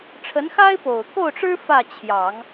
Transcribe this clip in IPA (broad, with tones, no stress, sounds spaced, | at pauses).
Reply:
ʈ͡ʂʰ ə˧˥ n x a˥ ɪ̯ p o˨˩ ʊ̯ k o˥˩ ʊ̯ ʈ͡ʂ ɻ̩˥ f ä˥˩ t͡ɕʰ j ɑ˨˩˦ ŋ